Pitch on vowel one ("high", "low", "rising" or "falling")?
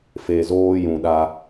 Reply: low